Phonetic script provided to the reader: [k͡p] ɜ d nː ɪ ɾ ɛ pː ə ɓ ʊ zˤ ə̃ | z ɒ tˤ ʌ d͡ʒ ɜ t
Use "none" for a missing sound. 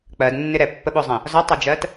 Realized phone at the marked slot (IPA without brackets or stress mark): k͡p